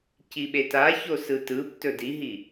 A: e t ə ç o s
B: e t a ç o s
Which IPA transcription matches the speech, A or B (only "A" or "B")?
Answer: B